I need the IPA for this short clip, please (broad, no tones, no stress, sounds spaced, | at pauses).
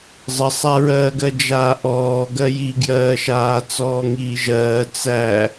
zˤ ə sˤ a ɹ ɜː ɡ ɜ d͡ʒ aː ʔ ɔː ɡ ɜ j i ɡ j ɜː ʃ aː t͡s ɔː ŋ iː ʒ ɜː t͡s æ